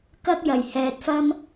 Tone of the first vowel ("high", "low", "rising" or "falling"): high